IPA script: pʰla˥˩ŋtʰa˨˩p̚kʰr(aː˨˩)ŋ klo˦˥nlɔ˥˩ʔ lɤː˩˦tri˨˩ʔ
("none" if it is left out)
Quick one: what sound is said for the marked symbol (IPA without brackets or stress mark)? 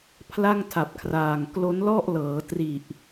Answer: aː˨˩